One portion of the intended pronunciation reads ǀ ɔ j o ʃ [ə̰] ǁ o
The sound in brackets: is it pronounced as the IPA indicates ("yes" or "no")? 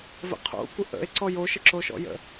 no